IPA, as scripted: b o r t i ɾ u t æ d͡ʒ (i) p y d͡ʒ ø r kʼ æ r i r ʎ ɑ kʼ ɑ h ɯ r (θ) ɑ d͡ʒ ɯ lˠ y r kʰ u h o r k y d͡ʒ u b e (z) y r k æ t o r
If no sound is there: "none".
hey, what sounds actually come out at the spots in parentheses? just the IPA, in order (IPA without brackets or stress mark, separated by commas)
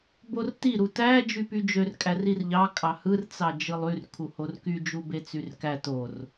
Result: y, t͡s, t͡s